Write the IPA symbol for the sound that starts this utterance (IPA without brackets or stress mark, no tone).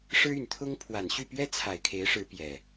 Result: ʂ